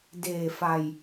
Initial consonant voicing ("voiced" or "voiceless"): voiced